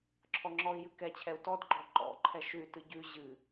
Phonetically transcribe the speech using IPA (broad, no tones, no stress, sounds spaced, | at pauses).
ǁʰ ɔ ŋ͡ǁ ɔ i̯ j ɨ k ɛ t͡ɕʰ ɛ u̯ t ɔ d ɡ͡ǃ ɔ ǃ ɔ̰ ǃʰ ɛ ʃ ʉ y̯ t ɨ ɟ ʉ ʑ ɨ